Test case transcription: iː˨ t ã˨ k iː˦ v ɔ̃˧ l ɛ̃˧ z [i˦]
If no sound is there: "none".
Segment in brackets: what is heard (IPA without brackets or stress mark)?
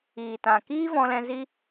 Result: i˦